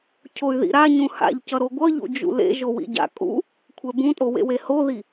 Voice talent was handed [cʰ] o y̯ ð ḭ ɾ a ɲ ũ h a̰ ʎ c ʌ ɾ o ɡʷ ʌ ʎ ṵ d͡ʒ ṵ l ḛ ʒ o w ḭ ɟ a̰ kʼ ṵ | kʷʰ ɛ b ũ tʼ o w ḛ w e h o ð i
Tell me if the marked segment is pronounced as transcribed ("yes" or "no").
yes